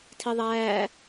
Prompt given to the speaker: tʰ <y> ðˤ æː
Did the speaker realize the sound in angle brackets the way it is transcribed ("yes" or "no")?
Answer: no